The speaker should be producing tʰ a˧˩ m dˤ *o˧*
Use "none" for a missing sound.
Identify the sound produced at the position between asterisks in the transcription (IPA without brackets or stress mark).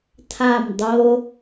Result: o˧